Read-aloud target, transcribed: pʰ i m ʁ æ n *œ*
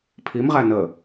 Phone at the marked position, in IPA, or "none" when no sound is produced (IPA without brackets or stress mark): ə